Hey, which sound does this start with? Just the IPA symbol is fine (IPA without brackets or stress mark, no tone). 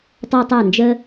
tˤ